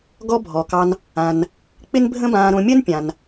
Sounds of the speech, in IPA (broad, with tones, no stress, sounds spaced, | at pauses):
ɡ ɔ˥ bʱ ɔ˩ k ɑ˧ n | ã˩ n | k͡p ɪ˥ n bʱ ə̃˥ b ãː˧ ɾ õ˧ mʲ ə˥ n pʲ ã˩ n